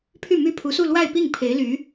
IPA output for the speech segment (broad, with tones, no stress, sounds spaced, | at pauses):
pʰ y˥˩ m y˥ pʰ u˧˥ s u˥˧ l w a˥˧ ɪ̯ p i˥˩ ŋ pʰ e˧˥ ɪ̯ l y˧˥